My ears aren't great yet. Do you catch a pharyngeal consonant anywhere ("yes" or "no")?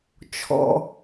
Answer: no